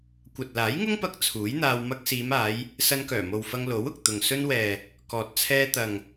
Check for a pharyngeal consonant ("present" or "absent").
absent